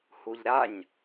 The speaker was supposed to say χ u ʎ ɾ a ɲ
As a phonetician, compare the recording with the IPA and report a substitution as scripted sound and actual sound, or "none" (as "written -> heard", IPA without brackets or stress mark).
χ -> h